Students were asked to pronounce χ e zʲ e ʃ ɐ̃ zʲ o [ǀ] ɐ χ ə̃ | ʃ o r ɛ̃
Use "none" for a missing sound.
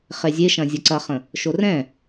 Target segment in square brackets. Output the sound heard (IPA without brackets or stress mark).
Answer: ǀ